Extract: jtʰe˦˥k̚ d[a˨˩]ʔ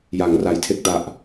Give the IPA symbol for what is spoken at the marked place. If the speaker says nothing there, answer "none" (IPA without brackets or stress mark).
a˨˩